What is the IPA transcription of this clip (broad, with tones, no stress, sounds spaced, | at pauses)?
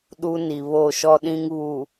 ɗ u˦ n i˨ β o˦˨ ʃ ɔ˦ ɗ ĩ˦ ŋ β u˨